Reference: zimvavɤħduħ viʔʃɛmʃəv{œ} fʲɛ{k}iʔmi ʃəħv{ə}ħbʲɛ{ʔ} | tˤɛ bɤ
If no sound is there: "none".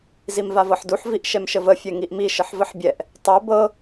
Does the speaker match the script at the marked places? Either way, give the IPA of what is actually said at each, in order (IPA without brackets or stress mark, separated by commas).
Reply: ə, ŋ, ə, ʔ